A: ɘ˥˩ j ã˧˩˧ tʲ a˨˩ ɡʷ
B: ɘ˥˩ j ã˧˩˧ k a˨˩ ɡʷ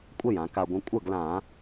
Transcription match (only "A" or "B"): B